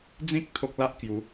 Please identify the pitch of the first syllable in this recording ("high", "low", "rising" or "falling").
high